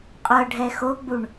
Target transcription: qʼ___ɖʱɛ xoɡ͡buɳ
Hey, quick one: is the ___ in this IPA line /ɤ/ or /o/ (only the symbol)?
ɤ